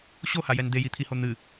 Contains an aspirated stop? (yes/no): yes